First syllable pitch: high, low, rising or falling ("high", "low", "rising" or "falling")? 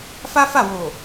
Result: high